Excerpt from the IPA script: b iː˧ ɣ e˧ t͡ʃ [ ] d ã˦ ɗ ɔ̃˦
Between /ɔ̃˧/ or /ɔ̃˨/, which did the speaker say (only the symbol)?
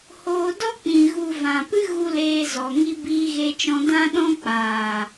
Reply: ɔ̃˧